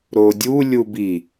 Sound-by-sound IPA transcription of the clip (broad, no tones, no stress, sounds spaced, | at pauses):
ɾ o dʲ u lʲ u b i